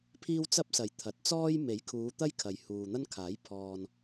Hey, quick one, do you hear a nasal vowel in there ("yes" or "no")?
no